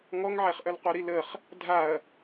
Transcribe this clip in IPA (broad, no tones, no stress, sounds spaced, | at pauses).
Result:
ŋ ɔ ŋ ʕ ɛ χ ʔ œ l qʷ œ ɾ i l ə χ | dʱ a ɐ̯